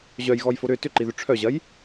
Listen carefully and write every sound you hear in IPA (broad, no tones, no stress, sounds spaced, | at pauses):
ʑ œ j ɣ ɔ j f o ɾ ʏ t ʏ ǃ i ð ʏ ʈ͡ʂʰ œ ʑ ɐ j